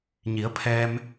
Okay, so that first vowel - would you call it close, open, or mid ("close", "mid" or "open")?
close